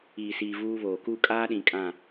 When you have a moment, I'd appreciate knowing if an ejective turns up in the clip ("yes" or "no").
yes